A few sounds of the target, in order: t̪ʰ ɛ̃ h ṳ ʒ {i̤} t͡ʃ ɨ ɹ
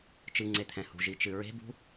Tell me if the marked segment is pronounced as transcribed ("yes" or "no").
no